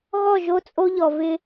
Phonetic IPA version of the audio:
ɣɔ˦˨ʒo˦t͡sʼo˦ʎɔ˨ vɪ˦

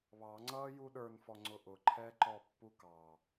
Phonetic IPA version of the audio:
βɑŋ͡ǀʌːju ɗə˞nfɔŋ͡ǀʊ ʔʊǃʰɛːǃɔpːu kɑ

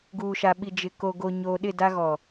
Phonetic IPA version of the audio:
ɡuː˨ʃa˨ɓi˨ d͡ʒɪ˨ ko˨ɡo˨ ɲoː˨ɗɪ˦˨ da˦ɣɔ˨

